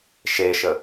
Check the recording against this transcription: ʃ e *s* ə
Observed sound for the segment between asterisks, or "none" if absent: ʃ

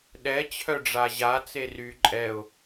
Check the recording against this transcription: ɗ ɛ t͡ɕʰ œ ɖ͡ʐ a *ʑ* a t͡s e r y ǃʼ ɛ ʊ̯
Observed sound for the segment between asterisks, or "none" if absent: ʑ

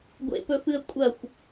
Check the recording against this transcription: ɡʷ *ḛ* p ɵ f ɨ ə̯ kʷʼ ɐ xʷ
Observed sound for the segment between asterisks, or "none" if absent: ḛ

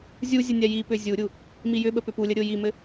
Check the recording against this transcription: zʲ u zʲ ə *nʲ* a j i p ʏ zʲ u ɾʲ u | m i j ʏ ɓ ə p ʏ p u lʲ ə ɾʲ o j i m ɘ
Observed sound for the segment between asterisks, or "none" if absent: nʲ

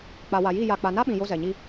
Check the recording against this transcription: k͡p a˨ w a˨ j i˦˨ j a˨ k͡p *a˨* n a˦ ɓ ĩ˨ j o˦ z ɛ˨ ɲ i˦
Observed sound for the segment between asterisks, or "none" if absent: a˨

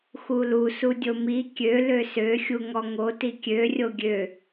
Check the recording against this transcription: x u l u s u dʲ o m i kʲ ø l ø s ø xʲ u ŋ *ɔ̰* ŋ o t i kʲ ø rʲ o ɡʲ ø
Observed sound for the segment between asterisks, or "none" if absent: ɔ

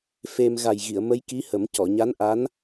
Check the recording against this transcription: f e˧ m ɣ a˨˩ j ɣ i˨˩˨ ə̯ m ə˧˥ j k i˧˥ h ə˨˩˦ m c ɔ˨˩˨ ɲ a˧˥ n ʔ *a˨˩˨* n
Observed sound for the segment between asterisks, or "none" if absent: a˧˥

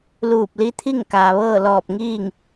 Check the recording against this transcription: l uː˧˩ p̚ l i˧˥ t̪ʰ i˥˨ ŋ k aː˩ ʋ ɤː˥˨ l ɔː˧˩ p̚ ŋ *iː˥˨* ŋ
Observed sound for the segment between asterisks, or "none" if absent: iː˥˨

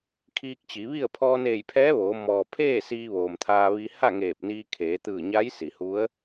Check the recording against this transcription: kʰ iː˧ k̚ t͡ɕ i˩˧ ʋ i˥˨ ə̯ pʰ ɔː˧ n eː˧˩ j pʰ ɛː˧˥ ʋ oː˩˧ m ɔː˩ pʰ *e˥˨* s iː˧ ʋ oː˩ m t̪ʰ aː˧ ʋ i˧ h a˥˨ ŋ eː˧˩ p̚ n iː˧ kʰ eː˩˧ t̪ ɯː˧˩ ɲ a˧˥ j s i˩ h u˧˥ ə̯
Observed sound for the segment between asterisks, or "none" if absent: eː˥˨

